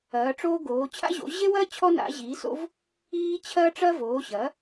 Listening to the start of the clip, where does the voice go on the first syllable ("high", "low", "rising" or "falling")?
rising